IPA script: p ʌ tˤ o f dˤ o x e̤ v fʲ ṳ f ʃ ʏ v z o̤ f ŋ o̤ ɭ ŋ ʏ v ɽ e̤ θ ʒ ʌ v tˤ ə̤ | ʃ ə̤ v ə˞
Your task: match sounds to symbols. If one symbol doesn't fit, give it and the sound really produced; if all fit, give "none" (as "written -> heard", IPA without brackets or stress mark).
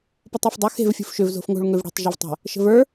θ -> tˤ